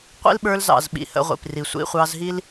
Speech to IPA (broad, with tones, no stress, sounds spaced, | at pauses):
qʷ ḭ˦ l ɓ ə˞˧ l z ɑ̰˨ z ɓ ḭ˧ h ə̰˧ ʁʷ ḭ˨ p r i˨ sʷ ḭ˧ χʷ ɑ˧ z ɦ i˦ l